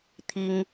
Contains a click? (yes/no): no